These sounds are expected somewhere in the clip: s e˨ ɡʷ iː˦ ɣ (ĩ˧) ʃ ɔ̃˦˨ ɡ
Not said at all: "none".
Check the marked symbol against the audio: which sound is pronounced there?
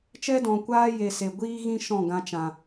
ĩ˦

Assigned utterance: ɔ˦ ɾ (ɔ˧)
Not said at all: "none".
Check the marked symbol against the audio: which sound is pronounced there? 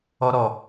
ɔ˧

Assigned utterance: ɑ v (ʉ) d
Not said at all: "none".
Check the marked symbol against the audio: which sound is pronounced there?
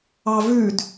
ʉ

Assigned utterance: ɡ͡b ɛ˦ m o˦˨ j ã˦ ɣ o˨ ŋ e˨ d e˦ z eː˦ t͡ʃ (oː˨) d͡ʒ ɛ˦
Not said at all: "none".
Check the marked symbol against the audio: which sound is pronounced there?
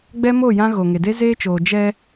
oː˨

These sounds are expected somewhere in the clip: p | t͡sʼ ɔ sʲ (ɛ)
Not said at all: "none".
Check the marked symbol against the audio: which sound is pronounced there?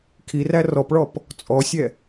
ɛ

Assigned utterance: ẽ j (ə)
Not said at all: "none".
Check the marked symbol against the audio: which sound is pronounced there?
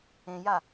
a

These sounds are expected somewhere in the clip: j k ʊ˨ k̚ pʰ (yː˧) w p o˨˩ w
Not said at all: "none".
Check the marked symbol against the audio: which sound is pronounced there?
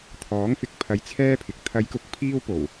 iː˧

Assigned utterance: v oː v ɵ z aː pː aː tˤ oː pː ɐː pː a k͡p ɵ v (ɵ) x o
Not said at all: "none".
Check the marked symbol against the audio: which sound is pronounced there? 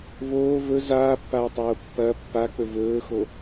ɵː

